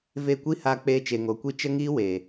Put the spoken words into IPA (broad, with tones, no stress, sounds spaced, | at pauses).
v e˦˨ kʷ i˦ h aː˧ k͡p eː˧ t͡ʃ e˨ ŋ o˨ kʷ i˦ t͡ʃ ə˦ ŋ iː˦ w e˨